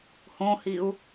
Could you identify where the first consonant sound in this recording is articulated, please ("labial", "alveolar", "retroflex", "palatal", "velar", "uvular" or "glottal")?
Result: glottal